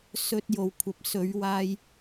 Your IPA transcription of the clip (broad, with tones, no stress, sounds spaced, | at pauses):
s ɵ˧ t̚ j o˨ w kʷʰ ɐ˨ p̚ s ɵ˨˧ ɥ w aː˧ j